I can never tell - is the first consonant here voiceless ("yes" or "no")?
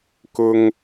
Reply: yes